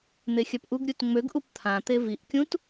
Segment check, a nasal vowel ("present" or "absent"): present